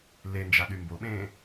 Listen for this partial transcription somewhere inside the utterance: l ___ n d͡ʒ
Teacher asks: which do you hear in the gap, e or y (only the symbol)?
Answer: e